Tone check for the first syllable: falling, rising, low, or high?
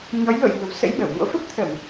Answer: rising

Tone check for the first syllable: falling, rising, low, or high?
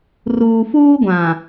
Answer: low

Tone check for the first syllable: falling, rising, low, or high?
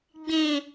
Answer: low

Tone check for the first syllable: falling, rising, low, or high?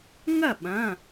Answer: falling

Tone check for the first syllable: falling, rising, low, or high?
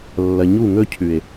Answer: low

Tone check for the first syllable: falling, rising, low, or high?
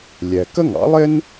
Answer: low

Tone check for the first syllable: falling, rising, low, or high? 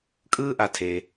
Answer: high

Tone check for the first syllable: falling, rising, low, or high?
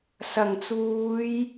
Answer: low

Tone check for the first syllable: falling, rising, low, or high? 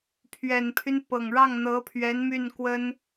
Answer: low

